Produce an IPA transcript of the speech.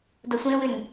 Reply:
dʌsʷẽwʏn

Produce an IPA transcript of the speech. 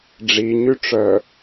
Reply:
ɖ͡ʐiɲyʈ͡ʂœ

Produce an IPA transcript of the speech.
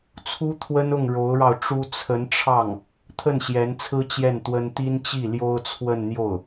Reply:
t͡sʰu˥t̪ʰwə˥nʊ˥˩ŋ ɻo˧˥ʊ̯ɻɑ˧ʊ̯ʈ͡ʂu˥ t͡sʰə˧˥nʈ͡ʂʰɑ˥˩ŋ | t̪ʰə˥˩nɕjɛ˧˥nt͡sʰɹ̩˥ t͡ɕjɛ˥˩nt̪wə˥n t̪i˥nt͡ɕi˥˩ ljo˥ʊ̯t͡sʰwə˥˧nn̪jo˥˩ʊ̯

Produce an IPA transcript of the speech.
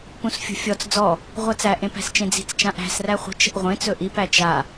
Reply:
pũsfʲṳfʲɔt͡s d͡zɔ | ʁʷat͡sæ ʔẽpæ̤st͡ʃẽd͡zi̤t͡s t͡ʃãʔæ̤s ræχʷə̤ t͡ʃə̤ʔʁʷẽ t͡sɵʔi pæt͡ʃa

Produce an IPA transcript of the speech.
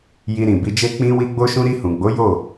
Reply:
ji˧ɾĩ˨bi˧d͡ʒe˦ k͡pĩ˧wi˧ ɡ͡bo˦ʃũ˦ ɾi˧hũ˨ɡ͡bo˨˦ jo˦˨

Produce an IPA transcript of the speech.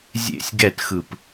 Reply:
zʲḛsʲ ɡɛtxɯp

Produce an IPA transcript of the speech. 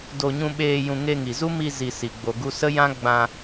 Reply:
do˧ɲũ˧ɓeː˧ jũ˧ ŋe˧ŋi˨zu˦ mi˧ zi˨ si˨ ɡ͡bo˨ɡu˧ sə˦jã˦ ɡ͡bã˧

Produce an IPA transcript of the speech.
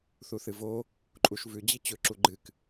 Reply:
θuθɨvo | ǃʼuʃvʉ d͡ʑit͡ɕɵ ǁuɡ͡ǃɨk

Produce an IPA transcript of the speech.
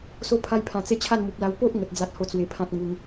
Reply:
so˧pʰa˧jpʰã˨˩t͡se˧ t͡ɕʰa˥˧nmu˨p̚la˧w po˦ʔ ŋə˨t̚ d͡za˦t̚ho˥˧t͡swe˧pʰã˦t̚ ŋu˧ŋ

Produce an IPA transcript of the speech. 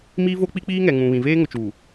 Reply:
miː˦vo˦k͡pi˦ k͡piː˦ŋɛ˨ŋũ˨ βĩ˨veː˦ŋʊ˨t͡ʃuː˨

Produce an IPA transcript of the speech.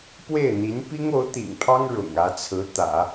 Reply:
pwe˥˩ɪ̯n̪i˧˥n pi˥ŋo˧˥ʊ̯t̪ḭ˨˩ŋpʰɑ˥ŋ ɻʊ̰˨˩ŋä˧˥t͡sʰɹ̩˧˥ t̪ä̰˨˩˦

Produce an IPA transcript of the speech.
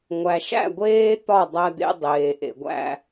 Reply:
ŋʷæ˨ʃæ̰˦˨ɡʷeː˦ t̪ɒ˦˨dˤæ˧d̪ḛ˧ dˤeː˨ʔḛ˨ɡʷæ̰˧

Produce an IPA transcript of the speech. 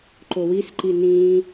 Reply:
ǃowis ǃinĩ

